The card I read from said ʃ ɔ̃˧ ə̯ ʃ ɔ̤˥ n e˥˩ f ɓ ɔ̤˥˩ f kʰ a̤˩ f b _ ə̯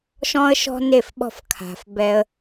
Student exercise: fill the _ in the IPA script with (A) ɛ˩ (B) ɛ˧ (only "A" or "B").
B